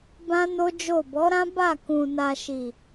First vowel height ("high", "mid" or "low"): low